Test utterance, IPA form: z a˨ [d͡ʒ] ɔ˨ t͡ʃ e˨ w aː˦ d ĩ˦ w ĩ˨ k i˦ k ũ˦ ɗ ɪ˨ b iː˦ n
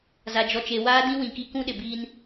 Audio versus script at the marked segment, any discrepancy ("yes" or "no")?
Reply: no